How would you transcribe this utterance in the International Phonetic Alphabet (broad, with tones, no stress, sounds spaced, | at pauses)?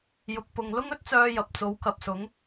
j ʊ˨ k̚ p ʊ˨ ŋ l ʊ˥ ŋ ɵ˥ t̚ t͡s œː˧ j ɐ˨ p̚ t͡s o˨˥ w k ɐ˨ p̚ s ʊ˨˥ ŋ